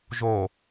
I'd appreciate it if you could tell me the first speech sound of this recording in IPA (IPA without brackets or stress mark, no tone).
ʒ